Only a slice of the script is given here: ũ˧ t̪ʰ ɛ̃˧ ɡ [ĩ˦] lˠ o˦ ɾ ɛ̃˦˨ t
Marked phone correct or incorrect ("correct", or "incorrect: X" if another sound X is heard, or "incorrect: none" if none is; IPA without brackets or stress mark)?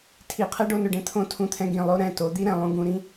incorrect: ĩ˨